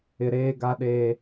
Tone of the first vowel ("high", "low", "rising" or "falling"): low